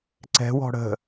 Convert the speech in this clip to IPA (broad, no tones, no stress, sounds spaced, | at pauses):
ǀ ɛ̤ w ɔ̤ ɽ ə̤